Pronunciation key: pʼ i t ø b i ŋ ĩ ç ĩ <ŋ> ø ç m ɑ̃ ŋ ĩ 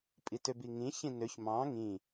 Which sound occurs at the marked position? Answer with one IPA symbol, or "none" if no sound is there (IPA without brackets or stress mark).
n